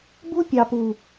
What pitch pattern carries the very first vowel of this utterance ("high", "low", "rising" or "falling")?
high